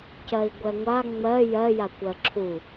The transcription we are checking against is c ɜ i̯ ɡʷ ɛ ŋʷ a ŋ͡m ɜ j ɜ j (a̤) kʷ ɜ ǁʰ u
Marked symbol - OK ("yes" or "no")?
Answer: no